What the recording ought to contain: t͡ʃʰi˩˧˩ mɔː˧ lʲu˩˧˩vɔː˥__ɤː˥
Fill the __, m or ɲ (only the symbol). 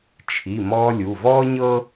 ɲ